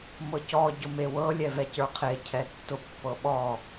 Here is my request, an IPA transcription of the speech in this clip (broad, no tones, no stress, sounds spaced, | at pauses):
m ɤ c ɔ ɟ ʊ m e w ɤ lʲ ɛ v ɛ c ə˞ qʰ e cʰ ɛ tː ʊ pː ɤ ɓ ɔ